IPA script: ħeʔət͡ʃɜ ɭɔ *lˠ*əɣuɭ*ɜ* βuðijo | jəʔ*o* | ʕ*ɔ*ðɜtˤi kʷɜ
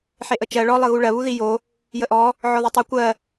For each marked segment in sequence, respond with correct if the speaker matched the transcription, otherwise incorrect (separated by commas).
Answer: correct, correct, incorrect, correct